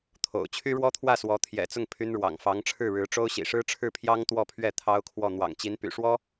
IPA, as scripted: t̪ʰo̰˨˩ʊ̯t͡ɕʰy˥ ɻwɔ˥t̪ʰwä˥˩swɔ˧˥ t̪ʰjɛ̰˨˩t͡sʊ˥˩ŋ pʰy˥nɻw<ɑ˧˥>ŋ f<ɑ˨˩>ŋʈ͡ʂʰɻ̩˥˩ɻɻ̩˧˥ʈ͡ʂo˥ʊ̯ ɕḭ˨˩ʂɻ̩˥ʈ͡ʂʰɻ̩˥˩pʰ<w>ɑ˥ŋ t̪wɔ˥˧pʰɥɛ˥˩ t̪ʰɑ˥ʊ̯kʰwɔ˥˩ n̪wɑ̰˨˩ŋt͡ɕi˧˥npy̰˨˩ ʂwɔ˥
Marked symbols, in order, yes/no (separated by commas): no, no, no